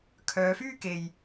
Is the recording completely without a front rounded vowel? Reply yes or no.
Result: no